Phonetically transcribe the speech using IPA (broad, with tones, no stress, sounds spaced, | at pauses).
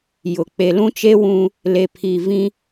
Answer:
j ʊ˨ k͡p e˨ l ũ˦ t͡ʃ e˦ w ũ˦ | l e˨ pʰ i˨ v ĩ˦